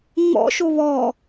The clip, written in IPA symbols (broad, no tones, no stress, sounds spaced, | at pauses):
ŋ͡m ɔ̰ ʃ o β ɔ